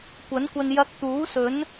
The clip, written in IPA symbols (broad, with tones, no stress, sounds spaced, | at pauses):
kʷ ɐ˨˥ n kʷ ɐ˧ n j ɐ˧ k̚ t̪ uː˨˥ s ɵ˨˥ n